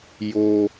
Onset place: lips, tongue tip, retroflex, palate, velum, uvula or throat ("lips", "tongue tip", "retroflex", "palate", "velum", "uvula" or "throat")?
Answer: palate